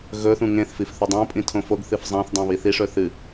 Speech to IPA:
ɣ ɵ θ ũ ŋ ẽ θ f i f θ ɵ dˤ õ pʼ ĩ tʰ õ f o ɡ θ ɨ f zˤ ã θ dˤ õ β i θ i ʂ ɵ θ ɨ

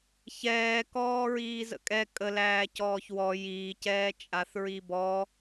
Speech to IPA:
ç ɛː k ɔː ɹ iː z ə̰ kʼ ɛ kʼ ə l æː c ɔː ç w ɔ j iː c ɛː t͡ʃʼ a θ ɹ i b ɔ

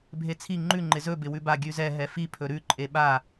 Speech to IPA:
bʱ e t͡sʰ i ŋ͡ǃ ʉ ŋ͡ǃ ɪ z ɵ b ɪ w ʉ b a ɡʲ ʉ z ɛ ɦ ɛ f i pʰ ɵ ɾ ʉ ǃʼ e ɓ a

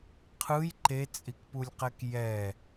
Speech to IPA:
qʰ ɯ j ǃ e t͡sʼ i k p u lʲ q ɛ k j ɛ

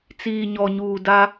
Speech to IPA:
t͡s iː˨ ɲ ɔ˨ ɲ uː˨ d a˦

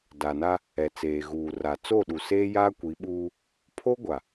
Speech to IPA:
d a˨ n a˦ | ɛ˨ t͡s eː˨ ɣ uː˨ r a˨ t͡s o˦˨ ɗ u˨ s eː˦ j aː˦ kʷ i˨˦ ɓ uː˦ | pʰ o˦ ɡʷ a˨

